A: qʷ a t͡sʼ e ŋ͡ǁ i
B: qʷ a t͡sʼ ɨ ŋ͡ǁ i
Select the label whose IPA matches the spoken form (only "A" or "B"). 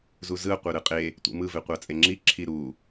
A